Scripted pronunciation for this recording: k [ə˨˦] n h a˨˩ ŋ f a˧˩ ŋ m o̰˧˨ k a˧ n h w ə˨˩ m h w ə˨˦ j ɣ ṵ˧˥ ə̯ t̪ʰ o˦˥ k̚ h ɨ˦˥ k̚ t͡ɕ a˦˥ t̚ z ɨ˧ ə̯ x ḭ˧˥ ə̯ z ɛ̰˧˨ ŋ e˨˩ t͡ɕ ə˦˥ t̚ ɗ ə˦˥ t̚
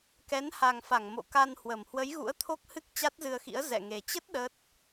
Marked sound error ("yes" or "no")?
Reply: yes